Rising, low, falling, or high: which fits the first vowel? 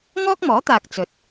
high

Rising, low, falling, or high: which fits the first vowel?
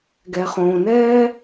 low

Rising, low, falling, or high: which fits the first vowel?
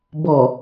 low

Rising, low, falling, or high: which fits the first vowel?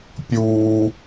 high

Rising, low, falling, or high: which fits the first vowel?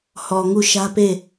low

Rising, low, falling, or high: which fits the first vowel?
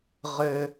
low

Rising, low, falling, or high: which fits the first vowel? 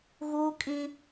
high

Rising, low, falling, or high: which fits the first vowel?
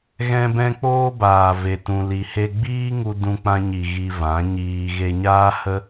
high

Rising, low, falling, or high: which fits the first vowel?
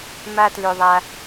high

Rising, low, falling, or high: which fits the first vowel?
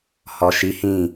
low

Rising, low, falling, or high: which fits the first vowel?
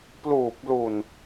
low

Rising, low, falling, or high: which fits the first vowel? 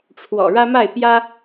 low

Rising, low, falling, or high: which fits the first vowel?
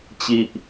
low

